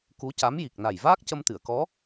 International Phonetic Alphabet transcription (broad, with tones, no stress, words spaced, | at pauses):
ku˧˥ca˧˥m ji˨˩k̚na˨˩j vaː˦˥k̚cə˧mt̪ɨ˨˩˨ə̯kɔ˧˥